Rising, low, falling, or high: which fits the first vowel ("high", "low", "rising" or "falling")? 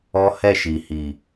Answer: high